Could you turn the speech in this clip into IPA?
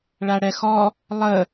ɭaɽɛxɔ | lˠə

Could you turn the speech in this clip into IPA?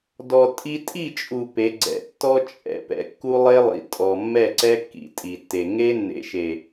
dɔ˨ tʼi˦ tʼi˦˨t͡ʃʼu˨ pe˨˦ɡ͡ǀɛ̰˨˦ tːɔ˦ t͡ʃʼɛ̰˨ pɛ̰˨kːu˦lˠe˦lˠḭ˨ tʼɔ˨ mːɛ˦˨ǀɛ˦kːḭ˨ tʼi˨tːe˨ ŋe˦nːḛ˨ʃe˨

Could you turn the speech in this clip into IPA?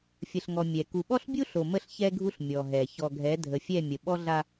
fʲə˨ɬŋɔ˨ mʲɛ˨ ku˨ɓɔ˦ɬbʲu˦ɬo˨ mə˦ɬçɛ˦ɡʱu˦ɬ mʲɔ˨ɦɛ˨ çɔ˨ɡʱɛ˨˦dʱə˨fʲɛ˦˨ mʲə˨ɓɔ˦ɮa˦

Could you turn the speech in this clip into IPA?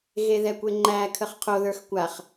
ɣeðɛkʷeŋ͡ǃæ kʰəχqʰoðə˞x kʷaχ

